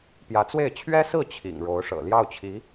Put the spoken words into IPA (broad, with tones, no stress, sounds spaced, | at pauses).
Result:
p j ä˧˥ t͡s w e˥˩ ɪ̯ t͡ɕʰ ɥ ɛ˥ s ɹ̩˥˩ t͡ɕʰ ḭ˨˩ ŋ ɻ o˧˥ ʊ̯ ʂ ɤ̰˨˩ l j ɑ˥˩ ʊ̯ t͡ɕʰ i˧˥